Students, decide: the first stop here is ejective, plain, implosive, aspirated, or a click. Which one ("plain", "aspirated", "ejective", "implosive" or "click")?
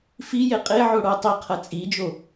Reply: ejective